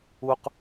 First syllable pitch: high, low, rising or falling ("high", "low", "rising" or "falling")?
high